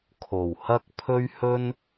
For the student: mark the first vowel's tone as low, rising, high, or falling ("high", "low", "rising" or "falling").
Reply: low